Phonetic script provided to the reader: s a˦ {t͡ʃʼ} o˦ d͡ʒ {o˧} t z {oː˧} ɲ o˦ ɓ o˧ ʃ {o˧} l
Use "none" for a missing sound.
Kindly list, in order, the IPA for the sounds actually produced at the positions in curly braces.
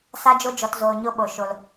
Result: d͡ʒ, ɔ˧, oː˧, o˧

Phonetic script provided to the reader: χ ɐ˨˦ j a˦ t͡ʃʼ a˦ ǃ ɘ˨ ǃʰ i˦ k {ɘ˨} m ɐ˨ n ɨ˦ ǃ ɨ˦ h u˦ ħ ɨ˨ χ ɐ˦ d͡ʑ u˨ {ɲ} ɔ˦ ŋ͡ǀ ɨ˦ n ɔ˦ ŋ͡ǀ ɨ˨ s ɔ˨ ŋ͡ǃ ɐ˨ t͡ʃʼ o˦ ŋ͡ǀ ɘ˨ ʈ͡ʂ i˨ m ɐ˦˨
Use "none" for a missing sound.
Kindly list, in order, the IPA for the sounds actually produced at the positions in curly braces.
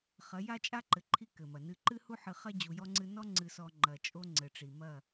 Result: ɘ˨, j

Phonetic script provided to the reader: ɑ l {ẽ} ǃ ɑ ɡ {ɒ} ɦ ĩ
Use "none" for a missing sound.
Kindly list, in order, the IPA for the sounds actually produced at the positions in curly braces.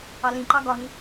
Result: ĩ, ɒ

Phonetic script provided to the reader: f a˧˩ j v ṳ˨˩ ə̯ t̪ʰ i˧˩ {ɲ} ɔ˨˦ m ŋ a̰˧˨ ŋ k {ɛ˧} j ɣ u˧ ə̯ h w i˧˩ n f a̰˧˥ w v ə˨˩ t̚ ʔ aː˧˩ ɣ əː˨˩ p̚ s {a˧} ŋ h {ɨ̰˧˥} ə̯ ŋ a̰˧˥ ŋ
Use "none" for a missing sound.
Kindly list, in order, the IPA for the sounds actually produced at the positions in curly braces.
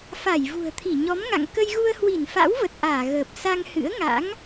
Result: ɲ, ə˧, a˧, ɨ̰˧˥

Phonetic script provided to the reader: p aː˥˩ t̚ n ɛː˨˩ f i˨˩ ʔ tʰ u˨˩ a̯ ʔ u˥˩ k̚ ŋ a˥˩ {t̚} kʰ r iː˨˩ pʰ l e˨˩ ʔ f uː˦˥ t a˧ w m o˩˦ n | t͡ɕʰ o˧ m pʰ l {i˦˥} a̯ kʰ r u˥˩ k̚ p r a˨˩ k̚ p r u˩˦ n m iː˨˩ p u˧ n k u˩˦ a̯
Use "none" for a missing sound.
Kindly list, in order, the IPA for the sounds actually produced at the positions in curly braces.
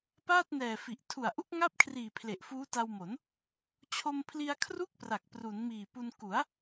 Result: p̚, i˧

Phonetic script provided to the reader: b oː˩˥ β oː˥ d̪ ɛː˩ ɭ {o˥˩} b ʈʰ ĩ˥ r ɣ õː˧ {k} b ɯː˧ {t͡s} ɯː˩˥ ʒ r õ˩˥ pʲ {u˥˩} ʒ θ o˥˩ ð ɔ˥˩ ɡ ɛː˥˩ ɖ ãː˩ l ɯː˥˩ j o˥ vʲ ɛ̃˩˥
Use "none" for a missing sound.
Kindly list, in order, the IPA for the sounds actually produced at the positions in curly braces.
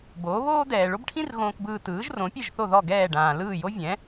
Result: o˥, k, t, ɯ˥˩

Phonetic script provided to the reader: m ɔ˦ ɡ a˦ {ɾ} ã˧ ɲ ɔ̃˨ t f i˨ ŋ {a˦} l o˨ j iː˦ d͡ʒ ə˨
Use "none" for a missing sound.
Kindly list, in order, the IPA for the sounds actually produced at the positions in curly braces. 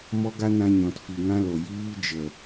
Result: n, ã˦

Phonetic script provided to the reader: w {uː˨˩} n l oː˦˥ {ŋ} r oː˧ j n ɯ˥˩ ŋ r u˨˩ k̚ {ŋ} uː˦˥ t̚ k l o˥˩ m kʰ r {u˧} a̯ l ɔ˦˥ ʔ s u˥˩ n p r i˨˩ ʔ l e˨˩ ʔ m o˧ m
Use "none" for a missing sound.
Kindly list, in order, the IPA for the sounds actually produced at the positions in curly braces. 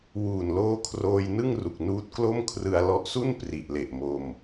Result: uː˨˩, kʰ, n, ɯ˧

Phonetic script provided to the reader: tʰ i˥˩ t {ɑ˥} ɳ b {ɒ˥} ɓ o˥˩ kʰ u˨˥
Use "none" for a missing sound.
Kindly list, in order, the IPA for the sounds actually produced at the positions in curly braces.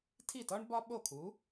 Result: ɒ˥, ɒ˥

